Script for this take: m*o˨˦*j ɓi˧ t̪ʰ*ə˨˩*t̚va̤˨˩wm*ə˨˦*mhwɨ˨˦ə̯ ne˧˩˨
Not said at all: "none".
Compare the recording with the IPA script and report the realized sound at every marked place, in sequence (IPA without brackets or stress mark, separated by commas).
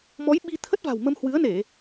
ɔ˨˦, ə˦˥, ə˧